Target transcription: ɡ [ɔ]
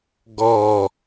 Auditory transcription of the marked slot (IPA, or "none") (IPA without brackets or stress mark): ɔ